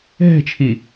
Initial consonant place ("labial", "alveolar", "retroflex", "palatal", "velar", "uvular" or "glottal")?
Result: glottal